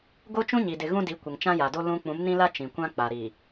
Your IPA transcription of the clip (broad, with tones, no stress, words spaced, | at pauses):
ɡo˦t͡ʃũ˦ɲi˨dɪ˨ ɣũ˦di˨˦ kʷɪ˨ŋt͡ʃã˦ja˨do˦ lũ˦ k͡pũ˨˦mnĩ˦la˦ t͡ʃĩ˨kʷã˦k͡pa˨ ɾi˨